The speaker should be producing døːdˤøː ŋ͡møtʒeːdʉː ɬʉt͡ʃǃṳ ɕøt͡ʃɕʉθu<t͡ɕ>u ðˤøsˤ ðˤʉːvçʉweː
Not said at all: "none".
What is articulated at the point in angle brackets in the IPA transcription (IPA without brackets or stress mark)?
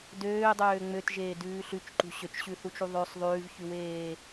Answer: t͡ʃ